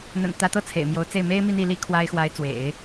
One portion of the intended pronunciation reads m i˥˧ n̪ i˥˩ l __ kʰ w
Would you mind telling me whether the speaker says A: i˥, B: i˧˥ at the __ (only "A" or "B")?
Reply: A